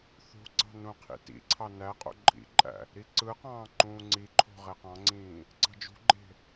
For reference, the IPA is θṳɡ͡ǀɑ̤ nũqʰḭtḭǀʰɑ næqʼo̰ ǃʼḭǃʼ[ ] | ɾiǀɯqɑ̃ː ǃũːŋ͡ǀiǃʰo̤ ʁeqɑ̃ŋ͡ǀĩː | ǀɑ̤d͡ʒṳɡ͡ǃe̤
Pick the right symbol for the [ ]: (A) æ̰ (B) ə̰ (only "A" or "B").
A